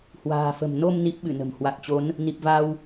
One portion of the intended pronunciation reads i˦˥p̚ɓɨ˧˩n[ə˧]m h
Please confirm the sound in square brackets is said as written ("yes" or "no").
no